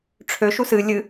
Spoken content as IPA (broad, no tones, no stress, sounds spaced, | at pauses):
ʈ͡ʂʰ ø ʃ u s ɨ lʲ ɨ